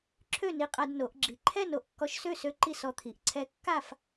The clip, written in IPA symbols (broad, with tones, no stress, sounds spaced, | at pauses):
ǁʰ ø˥˨ n i˧ qʼ a˧ d n o˩˧ ʔ ɡ͡ǁ i˩˧ ǃʰ ɛ˥˨ n o˥˨ ʔ kː ɔ˧ ʃ s ø˥˨ s ø˧˥ ǃ i˥˨ s ɔ˧ t̪ʰ i˩˧ ʔ ǀʰ ɛ˧ kː a˥˨ f